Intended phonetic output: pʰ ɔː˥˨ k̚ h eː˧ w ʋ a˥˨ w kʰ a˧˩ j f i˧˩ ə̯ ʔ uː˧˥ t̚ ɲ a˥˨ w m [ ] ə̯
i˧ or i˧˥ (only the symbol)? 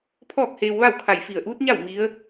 i˧˥